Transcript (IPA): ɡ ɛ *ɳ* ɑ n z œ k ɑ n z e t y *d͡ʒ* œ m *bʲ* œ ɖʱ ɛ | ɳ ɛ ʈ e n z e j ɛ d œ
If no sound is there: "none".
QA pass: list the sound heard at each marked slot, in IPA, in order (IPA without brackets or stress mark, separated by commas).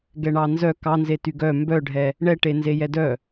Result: ɳ, ɡ, b